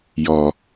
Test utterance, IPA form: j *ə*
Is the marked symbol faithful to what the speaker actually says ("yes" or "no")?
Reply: no